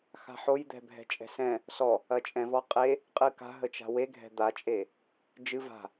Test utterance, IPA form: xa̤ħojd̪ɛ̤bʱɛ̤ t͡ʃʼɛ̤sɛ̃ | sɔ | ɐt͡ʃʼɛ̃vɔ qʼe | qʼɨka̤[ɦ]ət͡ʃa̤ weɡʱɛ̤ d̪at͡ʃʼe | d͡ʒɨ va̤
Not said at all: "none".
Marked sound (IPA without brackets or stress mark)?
ɦ